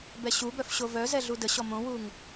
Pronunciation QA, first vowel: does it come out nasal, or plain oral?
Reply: oral